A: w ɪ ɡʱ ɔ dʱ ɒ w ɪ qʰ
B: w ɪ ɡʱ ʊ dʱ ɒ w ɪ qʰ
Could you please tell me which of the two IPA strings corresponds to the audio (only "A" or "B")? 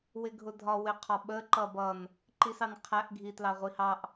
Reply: B